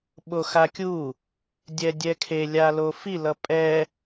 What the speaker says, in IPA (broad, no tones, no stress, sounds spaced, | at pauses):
ɓ o x a kʲ u | dʲ ɛ dʲ ɛ kʰ e lʲ a l o f i l ʌ pʼ ɛ